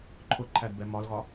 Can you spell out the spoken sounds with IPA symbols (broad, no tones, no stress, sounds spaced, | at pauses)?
ǃʰ ʊ ǃʰ æ d b ɛ m ɒ l ɣ ɒ